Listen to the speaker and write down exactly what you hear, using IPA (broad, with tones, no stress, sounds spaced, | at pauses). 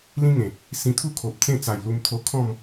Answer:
l ĩ˦ ŋ ẽ˨˩ | s ĩ˧ t̪ʰ u˥˧ kʰ o˨ p̚ t͡s ẽ˥˧ t͡s a˨˩ j l u˧ m t̪ʰ o˧ kʰ ɔ̃˥˧ m